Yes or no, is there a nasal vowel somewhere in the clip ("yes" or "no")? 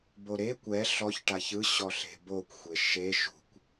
no